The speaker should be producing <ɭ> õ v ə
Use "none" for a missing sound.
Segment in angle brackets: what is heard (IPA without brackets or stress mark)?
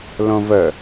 l